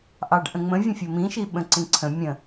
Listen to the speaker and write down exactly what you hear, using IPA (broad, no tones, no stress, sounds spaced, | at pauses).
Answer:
ʔ ɑ ɖ ʔ ə̃ ŋ͡m ə̃ vʲ ə̃ fʲ ə m ĩ ʃ i ɓ ə̃ ǀ ĩ ǀʰ ə̃ mʲ ə̃